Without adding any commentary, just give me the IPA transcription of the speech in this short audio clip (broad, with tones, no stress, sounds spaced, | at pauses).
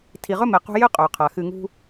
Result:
tʰ i˨ ʁ ɵ˥ m e˨ q ṳ˦ j ɨ˥ qʼ ɵː˩ qʰ a˩ x ɨ˨ ŋ ṳ˦